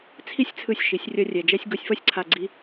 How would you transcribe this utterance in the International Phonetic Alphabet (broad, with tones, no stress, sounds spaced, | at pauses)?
t͡sʰ i˦ sʲ t͡sʰ ɯ˧ sʲ ʃ i˨˦ sʲ rʲ ʌ˧ rʲ ɛ˨ d͡ʒ ɛ˧ sʲ ɡ o˧ sʲ f ʌ˦ sʲ ǀʰ a˧ ɡ͡ǀ i˦